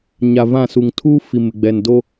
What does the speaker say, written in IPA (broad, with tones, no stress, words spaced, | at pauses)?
ɲa˨vã˦˨su˨ŋ tʰuː˦ fi˨mɪ˨ɡ͡bɛ˨n do˦